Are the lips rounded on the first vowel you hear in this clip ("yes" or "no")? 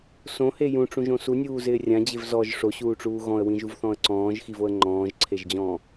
yes